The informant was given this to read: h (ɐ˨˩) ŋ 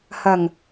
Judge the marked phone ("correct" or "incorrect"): correct